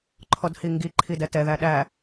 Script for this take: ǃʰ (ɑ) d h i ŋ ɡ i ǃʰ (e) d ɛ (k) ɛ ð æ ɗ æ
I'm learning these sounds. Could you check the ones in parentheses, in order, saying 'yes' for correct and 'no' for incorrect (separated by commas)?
no, no, no